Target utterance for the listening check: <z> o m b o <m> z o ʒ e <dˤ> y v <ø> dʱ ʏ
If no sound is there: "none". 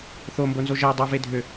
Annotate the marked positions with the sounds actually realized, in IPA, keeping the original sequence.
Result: θ, n, dˤ, e

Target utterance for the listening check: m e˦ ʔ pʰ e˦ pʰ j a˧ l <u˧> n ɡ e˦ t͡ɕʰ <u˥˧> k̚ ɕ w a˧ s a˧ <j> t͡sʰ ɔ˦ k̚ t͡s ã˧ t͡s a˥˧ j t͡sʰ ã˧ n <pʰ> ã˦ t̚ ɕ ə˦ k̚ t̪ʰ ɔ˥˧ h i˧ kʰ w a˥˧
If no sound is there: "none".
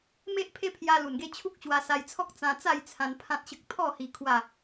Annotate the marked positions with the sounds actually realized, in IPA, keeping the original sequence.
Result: u˨˩, u˦, j, pʰ

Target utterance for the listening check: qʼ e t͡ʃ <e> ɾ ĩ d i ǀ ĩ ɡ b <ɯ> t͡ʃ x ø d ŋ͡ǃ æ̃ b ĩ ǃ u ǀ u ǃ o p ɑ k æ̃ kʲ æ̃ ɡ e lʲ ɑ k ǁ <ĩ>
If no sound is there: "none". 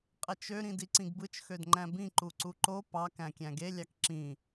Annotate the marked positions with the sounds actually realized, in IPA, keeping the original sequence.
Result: ø, ɯ, ĩ

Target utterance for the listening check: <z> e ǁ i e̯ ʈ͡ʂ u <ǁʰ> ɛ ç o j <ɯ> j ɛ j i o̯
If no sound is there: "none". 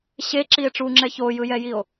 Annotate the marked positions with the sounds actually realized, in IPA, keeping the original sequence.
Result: ɕ, ŋ͡ǁ, ɯ

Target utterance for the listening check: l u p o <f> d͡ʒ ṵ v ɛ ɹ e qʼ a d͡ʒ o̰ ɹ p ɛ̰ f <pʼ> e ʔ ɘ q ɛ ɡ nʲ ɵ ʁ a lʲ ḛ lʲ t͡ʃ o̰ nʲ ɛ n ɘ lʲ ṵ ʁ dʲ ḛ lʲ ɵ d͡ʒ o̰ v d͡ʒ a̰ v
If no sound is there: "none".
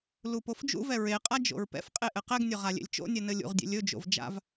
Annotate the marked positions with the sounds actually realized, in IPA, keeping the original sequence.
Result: f, qʼ

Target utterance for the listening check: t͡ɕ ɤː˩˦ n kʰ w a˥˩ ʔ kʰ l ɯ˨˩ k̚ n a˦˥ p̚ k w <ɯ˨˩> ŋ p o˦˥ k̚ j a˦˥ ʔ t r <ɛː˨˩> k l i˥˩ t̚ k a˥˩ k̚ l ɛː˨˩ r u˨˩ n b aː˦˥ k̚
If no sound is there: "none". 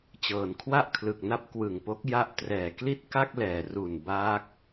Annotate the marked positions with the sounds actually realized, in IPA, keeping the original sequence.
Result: ɯ˨˩, ɛː˨˩

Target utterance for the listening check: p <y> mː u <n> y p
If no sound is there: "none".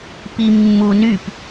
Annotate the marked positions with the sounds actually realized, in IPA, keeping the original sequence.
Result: i, n

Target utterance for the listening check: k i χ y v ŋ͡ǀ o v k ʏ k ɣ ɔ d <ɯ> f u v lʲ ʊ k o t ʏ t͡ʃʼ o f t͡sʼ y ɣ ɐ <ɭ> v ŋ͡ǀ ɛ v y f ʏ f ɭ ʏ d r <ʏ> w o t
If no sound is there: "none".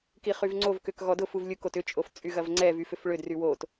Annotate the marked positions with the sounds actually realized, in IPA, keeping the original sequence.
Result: ʊ, none, y

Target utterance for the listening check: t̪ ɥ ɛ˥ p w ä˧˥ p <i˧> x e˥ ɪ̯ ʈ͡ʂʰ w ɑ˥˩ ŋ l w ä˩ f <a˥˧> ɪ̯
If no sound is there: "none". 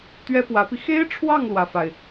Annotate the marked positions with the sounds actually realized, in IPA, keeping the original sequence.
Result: i˧, a˩

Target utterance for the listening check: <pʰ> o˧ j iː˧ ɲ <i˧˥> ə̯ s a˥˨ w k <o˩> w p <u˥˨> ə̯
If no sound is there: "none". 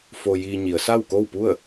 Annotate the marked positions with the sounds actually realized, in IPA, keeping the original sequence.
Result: f, i˩˧, o˥˨, u˥˨

